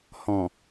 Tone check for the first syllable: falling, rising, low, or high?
low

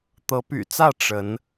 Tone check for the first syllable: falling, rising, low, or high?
rising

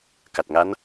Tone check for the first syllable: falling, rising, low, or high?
low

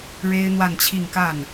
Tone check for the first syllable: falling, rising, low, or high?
high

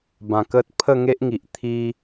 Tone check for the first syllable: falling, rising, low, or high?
low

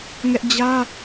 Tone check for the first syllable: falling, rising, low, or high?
high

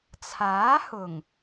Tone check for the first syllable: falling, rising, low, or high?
rising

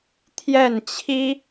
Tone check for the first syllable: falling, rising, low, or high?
falling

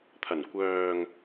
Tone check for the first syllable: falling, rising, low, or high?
low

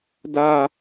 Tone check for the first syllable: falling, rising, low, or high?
high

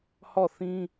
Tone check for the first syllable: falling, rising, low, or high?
falling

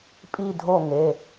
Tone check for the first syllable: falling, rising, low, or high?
falling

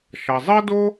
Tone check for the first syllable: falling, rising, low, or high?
low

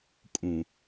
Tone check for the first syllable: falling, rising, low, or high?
low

